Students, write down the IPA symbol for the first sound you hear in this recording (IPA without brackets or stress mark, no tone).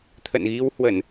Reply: t̪ʰ